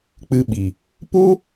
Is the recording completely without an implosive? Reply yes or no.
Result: no